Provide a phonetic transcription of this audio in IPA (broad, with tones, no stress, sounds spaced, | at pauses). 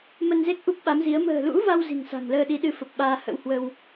m ə˧ n z e˦˥ k̚ ʔ u˦˥ p̚ ɓ a˨˦ m z i˨˦ ə̯ m ə̤ː˨˩ l ṵ˧˥ v a˧ w z i̤˨˩ ŋ s a̤˨˩ ŋ l əː˧ ɗ i˨˦ ɗ ɨ˧ f ə˨˩ p̚ ɓ aː˧ h ə̰˧˥ w h w ə˧ w